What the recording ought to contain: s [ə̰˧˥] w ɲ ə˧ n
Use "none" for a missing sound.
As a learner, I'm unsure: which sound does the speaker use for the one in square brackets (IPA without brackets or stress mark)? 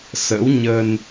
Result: ə̰˧˥